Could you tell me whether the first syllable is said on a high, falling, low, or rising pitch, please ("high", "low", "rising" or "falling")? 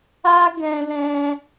high